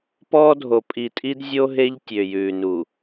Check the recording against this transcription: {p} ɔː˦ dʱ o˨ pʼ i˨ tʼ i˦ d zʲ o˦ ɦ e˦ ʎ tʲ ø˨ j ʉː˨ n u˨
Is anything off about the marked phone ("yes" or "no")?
no